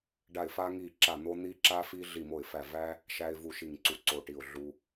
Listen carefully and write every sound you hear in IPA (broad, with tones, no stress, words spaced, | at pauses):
ɖa˧˩ɪ̯ fa˧ŋi˧˩ǁa˧˩ n̪o˧n̪i˧ ǁa˧fi˧ ɮi˧˩mo˧˩ɪ̯fæ˧˩ væ˧ | ʃæ˧ɪ̯vu˧˩ʃi˧˩ŋǀu˧˩ ǀo˧˩ʈi˧˩ʊ̯ ɮu˧